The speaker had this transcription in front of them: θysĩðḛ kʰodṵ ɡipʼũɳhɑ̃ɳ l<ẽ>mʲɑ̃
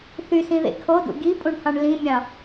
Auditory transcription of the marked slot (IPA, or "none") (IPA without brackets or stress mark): ĩ